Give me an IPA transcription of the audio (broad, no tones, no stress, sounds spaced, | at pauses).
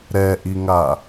ɾ ɛ ʔ i ŋ a